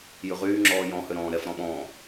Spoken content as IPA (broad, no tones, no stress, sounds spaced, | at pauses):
j ʉ ʁ yː ŋ͡ǁ ɔː j ɔ̃ h ø ɾ ɔ̃ː ɾ ɛ f ɾ ɔ̃ ɓ ɔ̃ː